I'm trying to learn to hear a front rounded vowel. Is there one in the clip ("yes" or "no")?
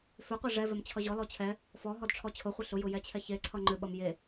yes